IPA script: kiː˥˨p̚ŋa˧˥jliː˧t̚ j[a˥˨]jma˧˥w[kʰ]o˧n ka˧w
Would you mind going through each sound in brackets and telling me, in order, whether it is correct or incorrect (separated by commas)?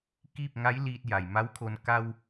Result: incorrect, correct